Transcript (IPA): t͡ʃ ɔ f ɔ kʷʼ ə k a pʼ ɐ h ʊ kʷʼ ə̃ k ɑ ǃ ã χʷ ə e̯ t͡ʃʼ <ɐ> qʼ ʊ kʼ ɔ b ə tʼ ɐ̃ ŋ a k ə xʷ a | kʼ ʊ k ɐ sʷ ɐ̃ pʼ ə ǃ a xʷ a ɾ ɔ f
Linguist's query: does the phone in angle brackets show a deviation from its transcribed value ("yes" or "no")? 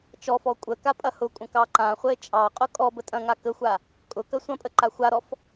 yes